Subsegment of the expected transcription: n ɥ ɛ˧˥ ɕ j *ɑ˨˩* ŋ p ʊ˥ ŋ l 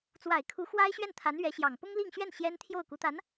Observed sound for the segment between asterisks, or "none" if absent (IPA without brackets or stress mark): ɑ˨˩